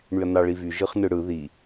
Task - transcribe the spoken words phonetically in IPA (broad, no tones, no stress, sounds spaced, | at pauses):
ɳ y ɐ̯ n ɑ ɭ i v y ʒ ɯ χ n ɯ ɽ ɯ ð i